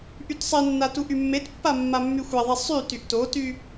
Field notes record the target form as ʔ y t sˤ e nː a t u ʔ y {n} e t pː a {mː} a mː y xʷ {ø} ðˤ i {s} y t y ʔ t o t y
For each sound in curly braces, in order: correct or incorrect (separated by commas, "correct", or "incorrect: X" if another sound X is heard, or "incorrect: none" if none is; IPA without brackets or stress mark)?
incorrect: mː, correct, incorrect: ɛ, incorrect: sˤ